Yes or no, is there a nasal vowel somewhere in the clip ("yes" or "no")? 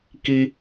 no